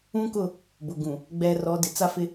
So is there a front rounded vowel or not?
no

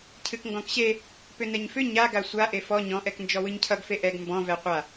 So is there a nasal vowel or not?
yes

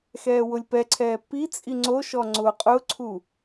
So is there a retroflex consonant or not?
no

